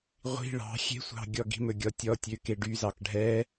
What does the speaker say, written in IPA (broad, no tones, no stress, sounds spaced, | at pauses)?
ʁʷ i̤ ɭ ɑ̤ xʲ e̤ sʷ ɑ̤ ɡʲ ɔ ɡ i̤ m ɵ ɡʲ ɔ tʲ ɔ tʲ ø k e ɖ y z ɑ k ɖʱ ɛ